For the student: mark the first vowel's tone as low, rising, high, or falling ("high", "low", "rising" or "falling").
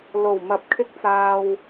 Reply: low